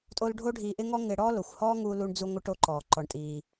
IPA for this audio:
tʼo˥l ɖʱo˥ɖʱiː˧ʔɪ˥ ŋɔ˥ŋɪ˧ɽɔ˥lo˩xʷ hɔː˥ŋuː˧ lu˧ɳd͡zu˧ŋʷɪ˧ ʈo˧ǃɔː˩ ǃɔ˩ɳtʼiː˩

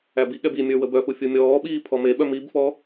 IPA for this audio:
æbiɠɛb imʲə˞ wəbœfu fʲumʲɔːɓiː pʰɔmeɓœ mibfɔ

